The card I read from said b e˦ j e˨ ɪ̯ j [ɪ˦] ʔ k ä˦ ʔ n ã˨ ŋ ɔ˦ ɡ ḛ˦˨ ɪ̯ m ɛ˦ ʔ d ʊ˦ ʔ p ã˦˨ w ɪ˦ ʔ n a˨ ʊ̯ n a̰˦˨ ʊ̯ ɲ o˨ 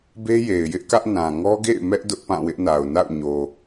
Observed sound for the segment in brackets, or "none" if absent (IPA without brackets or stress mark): ɪ˦